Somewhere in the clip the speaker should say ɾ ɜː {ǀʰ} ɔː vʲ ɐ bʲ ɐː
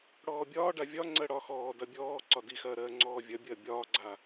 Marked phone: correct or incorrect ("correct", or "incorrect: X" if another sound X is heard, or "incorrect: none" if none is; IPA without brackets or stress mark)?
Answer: incorrect: ŋ͡ǀ